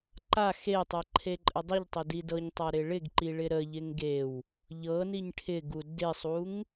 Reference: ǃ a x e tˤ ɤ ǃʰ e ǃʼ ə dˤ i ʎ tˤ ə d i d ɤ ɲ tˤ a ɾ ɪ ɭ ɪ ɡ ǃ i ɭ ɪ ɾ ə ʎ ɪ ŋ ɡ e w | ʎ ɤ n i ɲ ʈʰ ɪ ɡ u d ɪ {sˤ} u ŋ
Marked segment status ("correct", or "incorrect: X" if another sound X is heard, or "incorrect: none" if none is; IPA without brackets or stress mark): correct